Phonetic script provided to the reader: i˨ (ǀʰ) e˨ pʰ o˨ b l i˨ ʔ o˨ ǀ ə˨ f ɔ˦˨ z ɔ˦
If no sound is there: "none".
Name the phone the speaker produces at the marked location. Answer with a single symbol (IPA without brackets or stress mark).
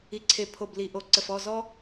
ǀʰ